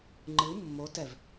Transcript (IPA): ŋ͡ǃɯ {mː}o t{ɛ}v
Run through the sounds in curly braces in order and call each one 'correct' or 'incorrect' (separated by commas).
correct, correct